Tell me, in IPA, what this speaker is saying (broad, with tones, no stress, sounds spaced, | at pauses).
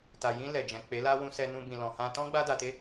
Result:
t a˨ j ĩ˧ l ɛ˨ d͡ʒ ɛ̃˨ k͡p e˨˦ l a˦ w ũ˧ s ɛ˧ n ũ˧ b ĩ˨ l ɔ̃˨ h ã˧ t ɔ̃˦ ɡ͡b a˦ d a˧ t e˦